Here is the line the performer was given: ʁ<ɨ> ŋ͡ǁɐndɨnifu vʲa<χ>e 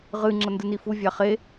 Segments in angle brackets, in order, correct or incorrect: correct, correct

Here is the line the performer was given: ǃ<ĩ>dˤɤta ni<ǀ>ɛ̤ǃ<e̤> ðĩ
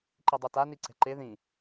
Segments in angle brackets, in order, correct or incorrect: incorrect, correct, incorrect

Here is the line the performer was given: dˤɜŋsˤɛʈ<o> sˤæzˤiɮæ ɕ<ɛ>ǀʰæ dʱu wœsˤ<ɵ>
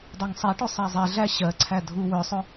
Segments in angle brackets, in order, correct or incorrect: correct, incorrect, correct

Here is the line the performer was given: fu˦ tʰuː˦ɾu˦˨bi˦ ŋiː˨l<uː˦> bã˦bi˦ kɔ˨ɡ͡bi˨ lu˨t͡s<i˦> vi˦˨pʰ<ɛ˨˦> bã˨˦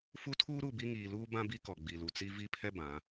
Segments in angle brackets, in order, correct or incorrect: correct, correct, incorrect

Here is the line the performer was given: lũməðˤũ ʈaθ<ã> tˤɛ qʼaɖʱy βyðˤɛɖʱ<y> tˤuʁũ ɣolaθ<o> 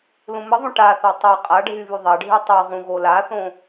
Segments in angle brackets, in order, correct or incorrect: incorrect, correct, incorrect

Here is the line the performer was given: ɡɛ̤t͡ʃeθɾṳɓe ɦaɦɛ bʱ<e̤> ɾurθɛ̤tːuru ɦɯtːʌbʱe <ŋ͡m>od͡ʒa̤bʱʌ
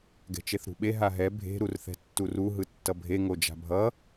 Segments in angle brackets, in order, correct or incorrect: correct, incorrect

